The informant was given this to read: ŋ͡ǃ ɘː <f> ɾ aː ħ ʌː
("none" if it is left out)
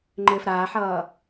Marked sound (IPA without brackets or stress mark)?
f